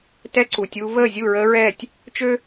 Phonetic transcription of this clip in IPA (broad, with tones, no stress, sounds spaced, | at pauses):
t ɛ˦ ǀ u˨ tʲ uː˦ v əː˦˨ zʲ u˦˨ ɹ əː˦ ɹ ɛː˦˨ tʲ | t͡ʃ ø˦